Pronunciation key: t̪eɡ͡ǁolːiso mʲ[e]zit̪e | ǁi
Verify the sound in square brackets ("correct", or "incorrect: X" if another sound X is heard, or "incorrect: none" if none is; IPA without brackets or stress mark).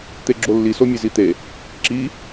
correct